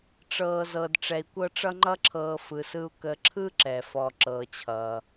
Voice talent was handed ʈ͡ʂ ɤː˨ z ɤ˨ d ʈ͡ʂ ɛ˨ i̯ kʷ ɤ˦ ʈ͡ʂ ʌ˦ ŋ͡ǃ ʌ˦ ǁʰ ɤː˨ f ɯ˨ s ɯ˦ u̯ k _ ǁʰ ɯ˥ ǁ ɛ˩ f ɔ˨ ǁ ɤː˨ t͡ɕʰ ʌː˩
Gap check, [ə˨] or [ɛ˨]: ə˨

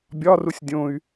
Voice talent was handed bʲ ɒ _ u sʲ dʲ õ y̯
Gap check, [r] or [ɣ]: r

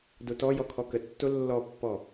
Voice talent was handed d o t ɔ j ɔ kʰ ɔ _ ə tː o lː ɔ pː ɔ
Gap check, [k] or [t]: k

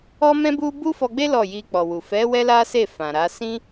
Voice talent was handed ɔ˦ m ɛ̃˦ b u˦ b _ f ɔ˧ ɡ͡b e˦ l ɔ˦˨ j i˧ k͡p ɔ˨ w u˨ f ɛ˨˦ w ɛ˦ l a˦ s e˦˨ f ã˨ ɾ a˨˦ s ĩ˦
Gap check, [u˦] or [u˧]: u˦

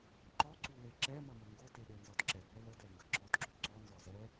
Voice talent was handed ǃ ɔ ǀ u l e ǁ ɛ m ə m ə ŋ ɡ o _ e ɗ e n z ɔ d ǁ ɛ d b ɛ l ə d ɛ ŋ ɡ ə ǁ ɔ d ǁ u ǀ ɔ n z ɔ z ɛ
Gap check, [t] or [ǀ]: t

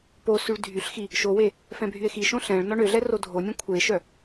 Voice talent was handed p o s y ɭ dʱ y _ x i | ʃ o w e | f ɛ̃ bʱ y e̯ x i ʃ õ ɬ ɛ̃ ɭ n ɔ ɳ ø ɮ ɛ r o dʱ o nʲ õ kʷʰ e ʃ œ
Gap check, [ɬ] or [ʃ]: ɬ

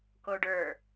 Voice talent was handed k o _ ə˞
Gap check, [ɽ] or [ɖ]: ɖ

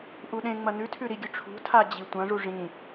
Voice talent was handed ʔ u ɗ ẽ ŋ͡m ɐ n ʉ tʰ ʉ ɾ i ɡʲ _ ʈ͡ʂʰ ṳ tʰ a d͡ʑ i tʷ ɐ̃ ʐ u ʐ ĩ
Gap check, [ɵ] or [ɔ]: ɵ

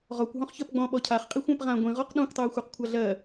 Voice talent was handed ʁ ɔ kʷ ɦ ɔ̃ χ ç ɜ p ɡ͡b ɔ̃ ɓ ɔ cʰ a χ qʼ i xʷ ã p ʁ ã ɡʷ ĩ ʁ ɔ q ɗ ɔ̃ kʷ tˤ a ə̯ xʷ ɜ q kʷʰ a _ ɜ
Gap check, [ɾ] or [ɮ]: ɮ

